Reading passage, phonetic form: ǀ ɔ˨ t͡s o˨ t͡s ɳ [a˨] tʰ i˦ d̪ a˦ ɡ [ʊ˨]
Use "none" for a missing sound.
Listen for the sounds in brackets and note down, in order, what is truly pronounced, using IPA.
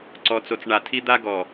a˨, ɔ˨

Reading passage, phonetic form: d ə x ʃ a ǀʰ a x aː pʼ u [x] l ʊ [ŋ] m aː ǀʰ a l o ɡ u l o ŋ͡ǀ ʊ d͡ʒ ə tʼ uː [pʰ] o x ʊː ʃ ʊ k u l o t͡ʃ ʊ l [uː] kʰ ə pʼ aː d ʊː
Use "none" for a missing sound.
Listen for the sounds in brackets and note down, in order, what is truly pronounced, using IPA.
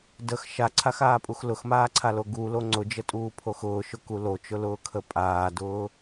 x, x, pʰ, ʊː

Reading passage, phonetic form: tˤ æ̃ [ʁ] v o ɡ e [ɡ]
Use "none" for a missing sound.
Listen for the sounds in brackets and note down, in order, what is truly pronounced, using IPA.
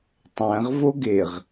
ʁ, ʁ

